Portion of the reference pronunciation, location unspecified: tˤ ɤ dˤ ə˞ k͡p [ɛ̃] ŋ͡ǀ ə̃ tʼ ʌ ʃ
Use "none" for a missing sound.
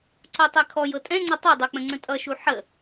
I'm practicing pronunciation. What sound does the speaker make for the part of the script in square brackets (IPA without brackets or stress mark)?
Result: ə̃